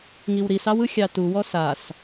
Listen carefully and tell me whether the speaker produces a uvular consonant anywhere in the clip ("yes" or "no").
no